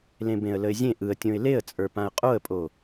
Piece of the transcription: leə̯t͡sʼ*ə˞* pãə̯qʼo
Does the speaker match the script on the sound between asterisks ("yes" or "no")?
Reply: yes